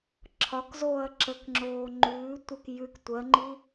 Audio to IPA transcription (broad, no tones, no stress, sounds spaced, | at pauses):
ǁʰ ɒ k z oː ɐ̯ ǁ ə k ŋ͡ǁ oː ŋ͡ǃ ʉː tʷ ə k j ʉ k tʷ ɜ ŋ͡ǃ i